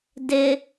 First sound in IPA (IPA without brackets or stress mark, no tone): d